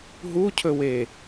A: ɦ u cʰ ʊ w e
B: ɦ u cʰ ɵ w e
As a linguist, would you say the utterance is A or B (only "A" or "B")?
B